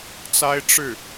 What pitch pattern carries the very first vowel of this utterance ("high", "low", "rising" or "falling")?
high